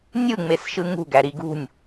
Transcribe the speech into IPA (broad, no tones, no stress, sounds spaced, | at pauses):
nʲ ɯ ŋ͡m e s ʃ ɯ ŋ ṳ ɡ æ ɾ i ɡ ṳ nʲ